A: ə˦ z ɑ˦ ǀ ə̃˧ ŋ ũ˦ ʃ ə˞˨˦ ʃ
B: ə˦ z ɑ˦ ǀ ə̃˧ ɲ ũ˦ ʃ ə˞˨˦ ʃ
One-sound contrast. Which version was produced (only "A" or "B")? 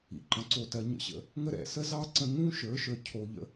A